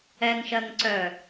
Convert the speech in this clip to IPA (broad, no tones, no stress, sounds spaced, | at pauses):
ɛ ŋ ʃ ɜ ŋ ǀ œ